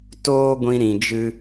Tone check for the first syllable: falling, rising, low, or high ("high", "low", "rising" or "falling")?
high